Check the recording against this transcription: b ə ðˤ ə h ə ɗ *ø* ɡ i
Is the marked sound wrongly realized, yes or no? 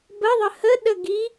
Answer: yes